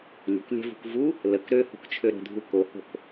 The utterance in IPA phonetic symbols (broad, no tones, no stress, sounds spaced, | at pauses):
lʲ ə̤ k lʲ ɛ̤ v ṳ k v u | l ə k ɾ ø h o̤ k t͡ʃʰ ø ɾ ə̤ dʱ u k o h o̤ k